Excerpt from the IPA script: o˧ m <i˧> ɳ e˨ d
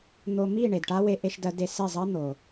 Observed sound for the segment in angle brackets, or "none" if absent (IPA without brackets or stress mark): i˦˨